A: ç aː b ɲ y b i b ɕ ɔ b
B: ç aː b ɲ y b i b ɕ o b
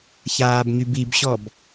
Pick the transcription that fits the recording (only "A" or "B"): A